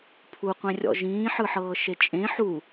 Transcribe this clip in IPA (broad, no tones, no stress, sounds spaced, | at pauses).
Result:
pʰ u qʷ ẽ rʲ ɔ̰ ʒ ĩː ħ ɯ ħ ɤː ʃ e t͡ʃʼ ẽ ħ u